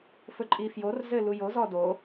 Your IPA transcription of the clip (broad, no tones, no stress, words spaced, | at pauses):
fɵǃʼifjorzɘ lujozɔ do